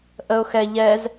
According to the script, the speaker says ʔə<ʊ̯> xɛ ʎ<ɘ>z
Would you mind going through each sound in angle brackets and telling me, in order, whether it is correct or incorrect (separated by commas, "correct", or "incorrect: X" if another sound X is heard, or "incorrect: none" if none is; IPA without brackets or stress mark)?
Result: correct, incorrect: ɛ